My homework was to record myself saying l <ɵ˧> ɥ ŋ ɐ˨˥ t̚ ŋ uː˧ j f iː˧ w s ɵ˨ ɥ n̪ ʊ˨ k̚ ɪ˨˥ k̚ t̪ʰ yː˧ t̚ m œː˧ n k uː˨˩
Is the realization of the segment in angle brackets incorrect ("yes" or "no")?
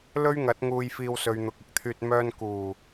yes